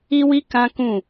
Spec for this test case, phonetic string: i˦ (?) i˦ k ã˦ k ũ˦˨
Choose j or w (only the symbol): w